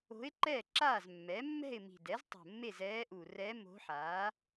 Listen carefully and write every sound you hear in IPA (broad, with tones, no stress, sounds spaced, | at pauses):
o̤˧˥ ɪ̯ ǃ ɛ˥˨ ǁ aː˥˨ z mː ɛ˩˥ mː ɛ̤˥˨ ɪ̯ m i̤˨˩ d ɛ˩˥ z tˤ o̤˨˩ mː e˥˨ z ɛː˧˥ ʔ u˨˩ r ɛ˧˥ m o̤˧˥ ħ aː˩˥